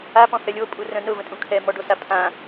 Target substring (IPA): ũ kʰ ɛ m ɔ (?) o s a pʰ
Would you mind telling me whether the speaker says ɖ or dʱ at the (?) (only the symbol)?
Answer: ɖ